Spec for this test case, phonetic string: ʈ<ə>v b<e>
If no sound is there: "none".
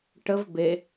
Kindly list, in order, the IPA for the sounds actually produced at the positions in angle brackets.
ə, e

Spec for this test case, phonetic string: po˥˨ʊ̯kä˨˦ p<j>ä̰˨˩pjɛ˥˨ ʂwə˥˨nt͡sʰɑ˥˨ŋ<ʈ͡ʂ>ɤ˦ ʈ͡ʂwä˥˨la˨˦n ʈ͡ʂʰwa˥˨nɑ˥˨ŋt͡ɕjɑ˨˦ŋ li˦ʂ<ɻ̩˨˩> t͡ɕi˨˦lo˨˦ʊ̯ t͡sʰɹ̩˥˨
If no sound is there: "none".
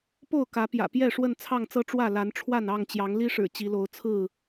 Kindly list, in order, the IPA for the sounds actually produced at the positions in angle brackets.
j, t͡s, ɻ̩˨˩

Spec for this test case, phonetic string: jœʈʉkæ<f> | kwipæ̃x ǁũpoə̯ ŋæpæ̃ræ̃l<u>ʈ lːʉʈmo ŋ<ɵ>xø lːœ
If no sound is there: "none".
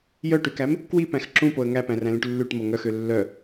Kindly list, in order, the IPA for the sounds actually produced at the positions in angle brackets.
m, ũ, œ

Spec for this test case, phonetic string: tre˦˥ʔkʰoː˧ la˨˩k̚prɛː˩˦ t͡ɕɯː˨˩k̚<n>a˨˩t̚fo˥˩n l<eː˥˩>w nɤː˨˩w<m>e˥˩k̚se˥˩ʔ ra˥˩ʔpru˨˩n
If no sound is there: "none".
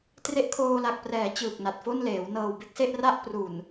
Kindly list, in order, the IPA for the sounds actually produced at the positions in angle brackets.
n, eː˩˦, b

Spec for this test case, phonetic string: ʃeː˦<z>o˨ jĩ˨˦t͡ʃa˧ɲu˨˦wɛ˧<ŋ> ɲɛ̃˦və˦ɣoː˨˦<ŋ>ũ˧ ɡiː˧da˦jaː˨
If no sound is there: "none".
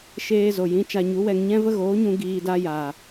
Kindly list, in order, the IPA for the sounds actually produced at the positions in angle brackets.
z, ŋ, ɲ

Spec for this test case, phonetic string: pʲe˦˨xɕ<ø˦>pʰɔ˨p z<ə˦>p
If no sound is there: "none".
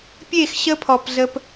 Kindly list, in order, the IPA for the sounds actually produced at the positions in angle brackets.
ə˦, ə˦

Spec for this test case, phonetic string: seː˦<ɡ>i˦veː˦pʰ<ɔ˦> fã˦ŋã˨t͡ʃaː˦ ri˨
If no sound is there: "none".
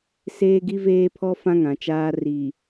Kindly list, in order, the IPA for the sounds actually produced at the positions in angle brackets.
ɡ, ɔ˦

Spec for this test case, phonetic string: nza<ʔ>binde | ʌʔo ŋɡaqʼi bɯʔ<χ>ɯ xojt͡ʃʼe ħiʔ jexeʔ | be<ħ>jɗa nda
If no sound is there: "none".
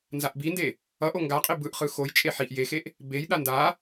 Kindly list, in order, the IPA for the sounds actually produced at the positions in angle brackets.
ʔ, χ, none

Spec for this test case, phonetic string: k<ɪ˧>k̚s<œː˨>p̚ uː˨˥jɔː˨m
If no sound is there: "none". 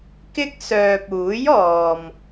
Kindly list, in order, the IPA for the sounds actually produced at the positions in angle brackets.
ɪ˥, œː˨

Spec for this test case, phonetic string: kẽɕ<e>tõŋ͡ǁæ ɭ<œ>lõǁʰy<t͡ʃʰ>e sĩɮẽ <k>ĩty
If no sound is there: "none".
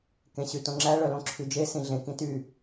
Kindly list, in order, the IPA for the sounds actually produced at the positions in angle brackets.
y, œ, d͡ʒ, k

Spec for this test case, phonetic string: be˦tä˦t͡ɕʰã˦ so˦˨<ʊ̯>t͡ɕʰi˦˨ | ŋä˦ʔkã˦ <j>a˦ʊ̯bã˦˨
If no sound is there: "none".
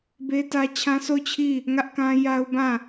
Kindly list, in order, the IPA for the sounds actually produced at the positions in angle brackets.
ʊ̯, j

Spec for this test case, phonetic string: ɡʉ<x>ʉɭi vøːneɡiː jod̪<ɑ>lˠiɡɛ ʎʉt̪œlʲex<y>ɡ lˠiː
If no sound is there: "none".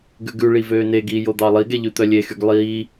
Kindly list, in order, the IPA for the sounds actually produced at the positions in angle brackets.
ɡ, ɑ, y

